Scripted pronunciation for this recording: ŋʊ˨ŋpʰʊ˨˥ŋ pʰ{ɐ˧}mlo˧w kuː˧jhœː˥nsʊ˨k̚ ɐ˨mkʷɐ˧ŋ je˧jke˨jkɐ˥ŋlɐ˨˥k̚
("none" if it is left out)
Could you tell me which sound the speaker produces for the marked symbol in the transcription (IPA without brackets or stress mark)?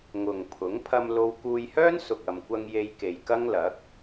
ɐ˧